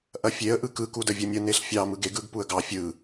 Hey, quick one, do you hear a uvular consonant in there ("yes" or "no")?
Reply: no